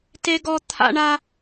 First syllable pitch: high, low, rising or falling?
high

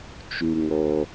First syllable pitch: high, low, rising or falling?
low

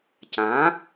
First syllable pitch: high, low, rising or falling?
rising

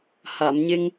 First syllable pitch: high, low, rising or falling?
low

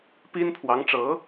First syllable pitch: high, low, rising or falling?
high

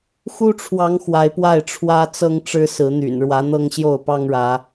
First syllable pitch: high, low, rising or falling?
high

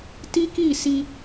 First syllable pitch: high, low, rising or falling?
high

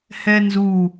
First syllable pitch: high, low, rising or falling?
high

